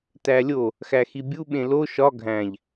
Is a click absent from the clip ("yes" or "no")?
yes